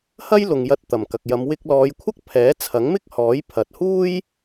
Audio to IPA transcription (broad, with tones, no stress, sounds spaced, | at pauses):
h ɐ˥ j l ʊ˨ ŋ j ɐ˧ t̚ t̪ ɐ˨˩ m k ɐ˨ k̚ j ɐ˨˧ m w ɪ˧ k̚ l ɔː˨˧ j kʷʰ ɐ˥ k̚ pʰ ɛː˨˥ t͡sʰ ɐ˨˥ ŋ m ɪ˥ k̚ h ɔː˨˥ j pʰ ɐ˨ t̚ h uː˥ j